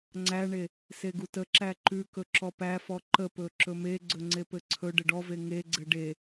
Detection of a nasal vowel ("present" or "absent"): absent